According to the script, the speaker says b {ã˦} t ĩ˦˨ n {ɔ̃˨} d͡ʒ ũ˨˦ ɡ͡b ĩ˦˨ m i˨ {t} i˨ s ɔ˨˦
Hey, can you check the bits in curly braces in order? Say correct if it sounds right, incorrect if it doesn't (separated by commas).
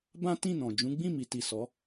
correct, correct, correct